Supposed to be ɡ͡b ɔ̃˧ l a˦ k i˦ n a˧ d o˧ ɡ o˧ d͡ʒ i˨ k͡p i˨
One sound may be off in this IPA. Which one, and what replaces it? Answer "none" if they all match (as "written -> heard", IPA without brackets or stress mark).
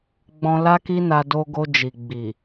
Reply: k͡p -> ɡ͡b